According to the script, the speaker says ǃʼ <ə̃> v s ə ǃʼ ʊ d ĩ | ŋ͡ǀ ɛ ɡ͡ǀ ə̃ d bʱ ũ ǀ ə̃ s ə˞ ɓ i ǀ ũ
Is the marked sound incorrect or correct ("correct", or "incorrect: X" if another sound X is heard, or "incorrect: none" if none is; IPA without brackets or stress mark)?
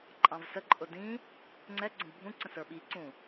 incorrect: ɑ̃